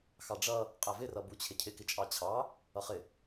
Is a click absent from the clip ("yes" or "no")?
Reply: yes